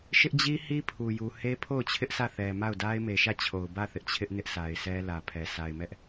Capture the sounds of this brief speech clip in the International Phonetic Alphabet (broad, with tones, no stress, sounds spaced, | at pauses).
ʃ ɪ˦ ʔ d͡ʑ i˦ h i˦ pʰ u˨ j u˨ h e˦ pʰ o˦˨ ʊ̯ t͡ɕʰ ɪ˦ ʔ s ä˦˨ θ ɛ˨ m a˦˨ ʊ̯ d a˦ ɪ̯ m e˨ ʃ ä˦˨ t͡ɕʰ o˨ ʊ̯ b ä˦˨ θ ɪ˦ ʔ t͡ɕʰ ɪ˦ ʔ n ɪ˦ ʔ sʰ a˨ ɪ̯ s ɛ˦ l ä˨ pʰ ɛ˨ s a˨ ɪ̯ m ɛ˦ ʔ